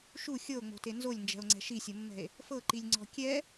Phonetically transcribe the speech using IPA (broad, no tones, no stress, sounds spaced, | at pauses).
ʃ u xʲ ɤ o̯ ŋ͡m o̤ t e n z o lʲ n d͡ʒ ɛ̤ o̯ ŋ͡ǀ ɛ̤ ʃ i sʲ ɤ mː ɛ̤ e̯ | f ɤ ǃ i lʲ ŋ͡ǀ ɔ̤ kʲ ɛ